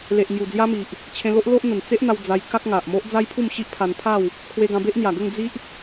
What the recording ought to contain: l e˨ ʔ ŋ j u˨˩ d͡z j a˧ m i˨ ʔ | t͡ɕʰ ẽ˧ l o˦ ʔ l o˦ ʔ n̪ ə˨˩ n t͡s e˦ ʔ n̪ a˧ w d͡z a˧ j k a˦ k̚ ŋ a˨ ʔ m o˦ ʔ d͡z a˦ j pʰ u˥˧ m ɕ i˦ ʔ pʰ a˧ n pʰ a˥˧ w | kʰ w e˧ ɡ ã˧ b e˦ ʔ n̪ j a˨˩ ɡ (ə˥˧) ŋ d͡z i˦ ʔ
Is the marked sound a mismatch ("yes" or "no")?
no